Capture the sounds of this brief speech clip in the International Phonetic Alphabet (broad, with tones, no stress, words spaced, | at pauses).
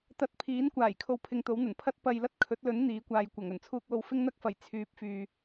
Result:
t̪ɐ˥t̚ pʰiː˨˥nkʷaː˨˩j kʰo˧wpʰɪ˧ŋt̪o˨˥wn̪ɐ˨˩n pʰɐ˥t̚ pɐ˧jlɐ˥t̚ kʰɵ˨˥t̚lɵ˨˥n n̪iː˨˥kʷaː˨jkʷɐ˨˩ŋ ɵ˨˩nt͡sʰuː˧k̚wo˧w fɪ˥ŋn̪ɐ˥k̚fɐ˨˩j t͡sʰyː˨˥p̚fyː˨